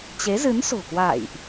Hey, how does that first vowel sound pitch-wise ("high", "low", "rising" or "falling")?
rising